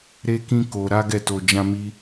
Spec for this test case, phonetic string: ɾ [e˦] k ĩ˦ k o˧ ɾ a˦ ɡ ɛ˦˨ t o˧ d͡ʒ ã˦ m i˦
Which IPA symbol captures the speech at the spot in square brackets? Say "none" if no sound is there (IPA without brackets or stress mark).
e˦